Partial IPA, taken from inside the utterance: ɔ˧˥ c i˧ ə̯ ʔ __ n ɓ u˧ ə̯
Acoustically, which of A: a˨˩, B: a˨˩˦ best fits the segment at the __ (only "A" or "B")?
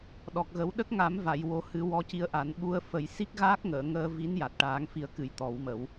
B